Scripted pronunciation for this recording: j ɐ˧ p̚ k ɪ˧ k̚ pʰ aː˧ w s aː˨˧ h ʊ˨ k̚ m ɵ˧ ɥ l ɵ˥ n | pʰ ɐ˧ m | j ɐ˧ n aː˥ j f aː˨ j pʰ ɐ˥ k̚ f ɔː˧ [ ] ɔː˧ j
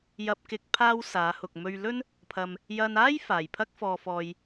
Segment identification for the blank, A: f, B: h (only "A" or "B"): A